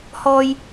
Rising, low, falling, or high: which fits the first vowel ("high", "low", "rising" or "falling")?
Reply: high